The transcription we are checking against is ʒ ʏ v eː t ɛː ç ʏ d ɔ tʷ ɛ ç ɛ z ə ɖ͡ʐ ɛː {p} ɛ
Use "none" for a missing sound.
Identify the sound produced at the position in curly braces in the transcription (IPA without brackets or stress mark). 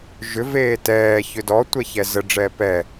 p